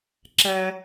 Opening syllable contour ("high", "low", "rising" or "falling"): high